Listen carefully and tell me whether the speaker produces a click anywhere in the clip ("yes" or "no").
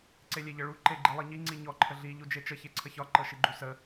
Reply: yes